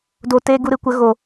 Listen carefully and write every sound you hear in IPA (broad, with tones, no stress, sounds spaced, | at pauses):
d o˨ t eː˧ ɡ u˧ ɾ ɨ˧ kʷ ə˨˦ ɣ o˨